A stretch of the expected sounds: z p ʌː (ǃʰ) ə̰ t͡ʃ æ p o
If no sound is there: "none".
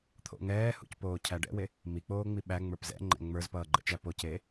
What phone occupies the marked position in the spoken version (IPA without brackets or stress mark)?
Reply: ɡ͡ǃ